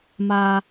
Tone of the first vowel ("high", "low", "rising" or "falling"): high